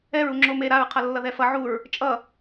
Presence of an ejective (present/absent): present